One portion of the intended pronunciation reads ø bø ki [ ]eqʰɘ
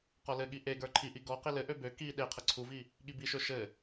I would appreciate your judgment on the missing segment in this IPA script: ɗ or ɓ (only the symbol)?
ɗ